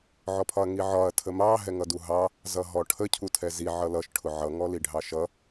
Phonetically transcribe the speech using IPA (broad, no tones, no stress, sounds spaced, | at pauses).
ʕ ɔ pʰ ɒ ɐ̯ ŋ i ʕ ɒ ɐ̯ tʰ ə m ɑ ɦ ɛ ŋ ʌ d u ɦ ɑ | z ʌ ɦ ɔ ʈʰ ə cʰ u tʰ ɛ z i ʕ ʌ l ʌ ʃ ʈʰ ʊ ʕ ʌ ŋ ɔ l i ɖʱ ɑ ʃ ʌ